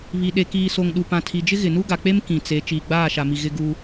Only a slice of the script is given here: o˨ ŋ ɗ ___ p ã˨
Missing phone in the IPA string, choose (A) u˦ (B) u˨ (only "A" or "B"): B